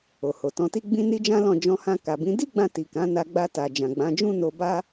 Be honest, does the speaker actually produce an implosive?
no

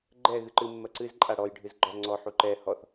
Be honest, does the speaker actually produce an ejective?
yes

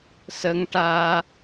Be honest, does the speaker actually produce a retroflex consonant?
yes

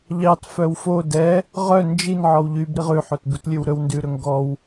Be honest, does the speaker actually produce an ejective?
no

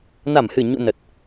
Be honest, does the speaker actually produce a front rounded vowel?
no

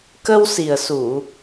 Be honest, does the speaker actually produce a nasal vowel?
no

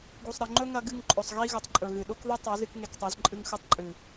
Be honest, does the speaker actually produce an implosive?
yes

